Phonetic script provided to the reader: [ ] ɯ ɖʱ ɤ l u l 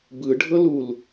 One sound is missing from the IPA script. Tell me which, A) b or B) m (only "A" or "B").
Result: A